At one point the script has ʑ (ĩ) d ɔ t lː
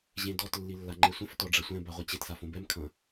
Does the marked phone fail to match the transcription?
yes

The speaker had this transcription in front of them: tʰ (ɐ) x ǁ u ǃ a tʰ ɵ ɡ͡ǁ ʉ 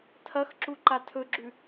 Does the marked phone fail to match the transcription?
no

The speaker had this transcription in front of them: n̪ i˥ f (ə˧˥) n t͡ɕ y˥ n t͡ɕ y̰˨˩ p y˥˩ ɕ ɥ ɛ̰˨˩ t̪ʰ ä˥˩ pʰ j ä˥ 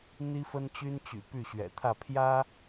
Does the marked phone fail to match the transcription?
yes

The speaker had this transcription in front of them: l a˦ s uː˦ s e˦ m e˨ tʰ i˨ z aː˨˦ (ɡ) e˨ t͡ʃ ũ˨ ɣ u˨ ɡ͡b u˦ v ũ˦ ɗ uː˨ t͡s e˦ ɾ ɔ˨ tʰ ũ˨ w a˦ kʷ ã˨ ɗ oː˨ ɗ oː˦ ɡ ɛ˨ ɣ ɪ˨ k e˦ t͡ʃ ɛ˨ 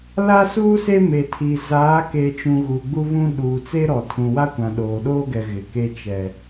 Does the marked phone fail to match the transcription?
yes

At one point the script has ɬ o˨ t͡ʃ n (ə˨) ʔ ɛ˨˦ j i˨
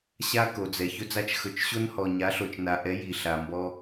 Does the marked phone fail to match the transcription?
yes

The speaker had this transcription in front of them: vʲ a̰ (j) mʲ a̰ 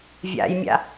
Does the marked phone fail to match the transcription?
no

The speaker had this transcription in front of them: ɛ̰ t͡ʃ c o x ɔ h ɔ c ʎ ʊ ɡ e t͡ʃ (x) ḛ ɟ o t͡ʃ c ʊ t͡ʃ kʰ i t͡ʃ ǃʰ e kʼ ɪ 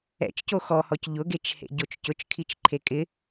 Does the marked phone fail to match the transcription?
yes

